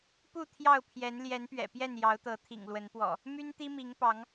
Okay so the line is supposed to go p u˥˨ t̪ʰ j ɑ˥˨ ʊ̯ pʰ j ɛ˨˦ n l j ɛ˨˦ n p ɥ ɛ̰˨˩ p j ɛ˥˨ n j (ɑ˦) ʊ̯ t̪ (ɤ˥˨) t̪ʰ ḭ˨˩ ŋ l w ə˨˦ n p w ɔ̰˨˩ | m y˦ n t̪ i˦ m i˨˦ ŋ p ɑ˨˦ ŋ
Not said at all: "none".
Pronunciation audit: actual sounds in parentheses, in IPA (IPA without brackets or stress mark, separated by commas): ɑ˨˦, ɤ˨˦